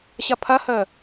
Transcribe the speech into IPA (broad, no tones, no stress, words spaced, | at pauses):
ɕɐpʰɐhəː